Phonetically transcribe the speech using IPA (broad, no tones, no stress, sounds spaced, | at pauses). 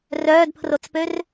r œː d pʰ r o t͡s p ø r